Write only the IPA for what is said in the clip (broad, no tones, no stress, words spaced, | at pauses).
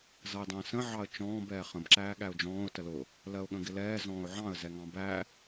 zʌɪ̯dˤə̃ːsə̃ ʕɑə̯t͡ʃɔ̃ːb ɛːχə̃b ǁæːɠæʊ̯d͡ʒɔ̃ːʊ̯ təlʊ | lɜʊ̯ɠə̃ɡɪlɛː zɔ̃ːʊ̯ʕɑ̃ə̯ zɛŋɑ̃bæ